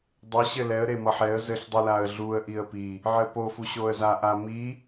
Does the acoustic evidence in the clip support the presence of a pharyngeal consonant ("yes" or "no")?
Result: yes